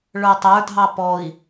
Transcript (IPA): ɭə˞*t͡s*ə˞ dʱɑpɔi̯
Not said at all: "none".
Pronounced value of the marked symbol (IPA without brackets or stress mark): tˤ